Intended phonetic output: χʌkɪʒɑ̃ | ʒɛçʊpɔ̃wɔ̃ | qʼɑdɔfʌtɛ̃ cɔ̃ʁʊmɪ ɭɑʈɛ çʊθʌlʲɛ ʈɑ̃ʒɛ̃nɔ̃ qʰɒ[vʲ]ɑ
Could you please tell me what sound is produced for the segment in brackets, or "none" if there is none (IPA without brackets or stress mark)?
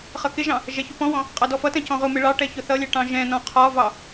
v